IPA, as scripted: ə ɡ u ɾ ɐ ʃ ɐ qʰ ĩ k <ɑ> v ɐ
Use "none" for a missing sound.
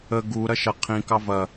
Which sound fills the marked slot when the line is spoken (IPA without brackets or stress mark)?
ɑ